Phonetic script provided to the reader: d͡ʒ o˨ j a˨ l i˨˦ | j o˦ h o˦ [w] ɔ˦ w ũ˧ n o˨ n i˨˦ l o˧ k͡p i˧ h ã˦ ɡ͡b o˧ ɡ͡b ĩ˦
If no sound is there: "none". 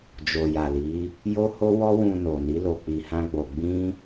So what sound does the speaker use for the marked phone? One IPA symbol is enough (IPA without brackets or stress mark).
w